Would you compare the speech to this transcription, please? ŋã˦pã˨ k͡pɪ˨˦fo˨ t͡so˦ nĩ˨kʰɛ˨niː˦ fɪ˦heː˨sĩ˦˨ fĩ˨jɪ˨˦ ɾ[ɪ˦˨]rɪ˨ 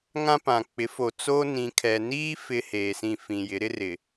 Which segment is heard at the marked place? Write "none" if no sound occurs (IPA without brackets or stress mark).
ɪ˦